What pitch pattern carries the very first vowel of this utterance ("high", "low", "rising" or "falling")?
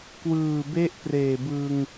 low